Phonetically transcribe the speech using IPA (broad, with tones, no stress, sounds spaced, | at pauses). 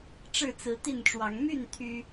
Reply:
ʈ͡ʂ ɻ̩˥˨ t͡s ɹ̩˨˦ t̪ i˥˨ n ʈ͡ʂ w ɑ˨˦ ŋ m y˥˨ n t̪ʰ y˦